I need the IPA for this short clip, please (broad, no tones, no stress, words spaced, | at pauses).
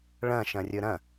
ɭɐ̃ʃɐ̃ rʲɵɾɐ̃